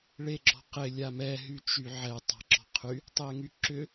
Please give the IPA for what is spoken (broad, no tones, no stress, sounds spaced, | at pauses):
ɭ e ɡ͡ǁ ɔ̤ q ɪ lʲ a m ɛ ɦ y t͡ʃ y ʕ ɛ tˤ a̤ ǁ ɔ̤ qʰ y | tˤ e ŋ y ǁ ʏ